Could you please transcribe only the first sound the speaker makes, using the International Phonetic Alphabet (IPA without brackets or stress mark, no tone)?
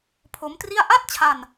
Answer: pʰ